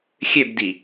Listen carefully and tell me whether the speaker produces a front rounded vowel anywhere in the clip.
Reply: yes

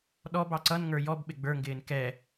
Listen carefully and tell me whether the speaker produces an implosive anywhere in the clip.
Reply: yes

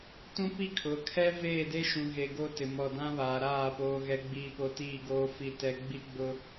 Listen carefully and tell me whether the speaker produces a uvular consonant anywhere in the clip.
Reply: no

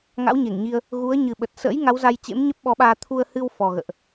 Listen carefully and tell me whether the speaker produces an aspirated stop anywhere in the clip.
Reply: yes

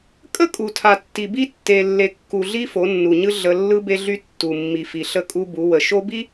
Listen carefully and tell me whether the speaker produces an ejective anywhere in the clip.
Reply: yes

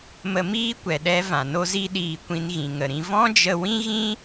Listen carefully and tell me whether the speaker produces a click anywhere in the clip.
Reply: no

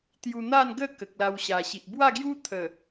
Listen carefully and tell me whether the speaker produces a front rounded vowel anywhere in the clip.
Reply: no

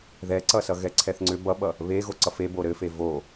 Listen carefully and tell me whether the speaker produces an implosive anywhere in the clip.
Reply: yes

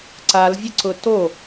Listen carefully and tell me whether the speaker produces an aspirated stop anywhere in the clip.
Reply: no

